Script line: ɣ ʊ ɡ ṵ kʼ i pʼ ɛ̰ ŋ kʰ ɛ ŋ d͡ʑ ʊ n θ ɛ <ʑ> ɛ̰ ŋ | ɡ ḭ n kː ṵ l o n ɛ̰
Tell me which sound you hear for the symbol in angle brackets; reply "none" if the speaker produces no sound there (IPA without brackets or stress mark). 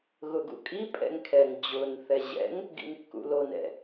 ʑ